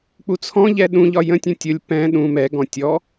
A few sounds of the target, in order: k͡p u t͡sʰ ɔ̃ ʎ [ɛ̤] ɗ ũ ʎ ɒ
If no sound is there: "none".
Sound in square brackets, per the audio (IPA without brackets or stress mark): ɛ